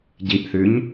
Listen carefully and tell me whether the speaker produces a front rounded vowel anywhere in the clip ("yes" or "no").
no